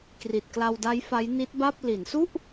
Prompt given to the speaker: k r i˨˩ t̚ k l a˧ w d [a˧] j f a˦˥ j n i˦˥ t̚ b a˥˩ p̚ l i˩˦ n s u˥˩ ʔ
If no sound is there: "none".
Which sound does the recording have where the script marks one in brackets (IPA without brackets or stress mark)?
a˦˥